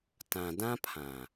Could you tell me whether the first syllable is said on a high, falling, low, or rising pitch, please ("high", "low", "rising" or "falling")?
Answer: low